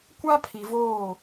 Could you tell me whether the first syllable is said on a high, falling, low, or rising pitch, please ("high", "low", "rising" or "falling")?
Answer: high